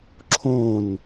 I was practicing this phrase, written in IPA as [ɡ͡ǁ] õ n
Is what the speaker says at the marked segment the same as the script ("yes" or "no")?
no